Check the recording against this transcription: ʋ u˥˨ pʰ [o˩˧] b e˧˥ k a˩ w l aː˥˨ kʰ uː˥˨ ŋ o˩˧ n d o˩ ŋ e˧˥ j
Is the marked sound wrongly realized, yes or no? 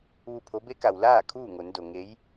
yes